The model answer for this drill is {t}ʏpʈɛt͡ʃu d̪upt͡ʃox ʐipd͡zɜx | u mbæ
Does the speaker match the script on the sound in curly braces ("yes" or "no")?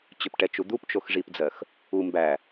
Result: no